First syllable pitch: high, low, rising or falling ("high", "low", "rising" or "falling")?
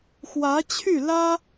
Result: rising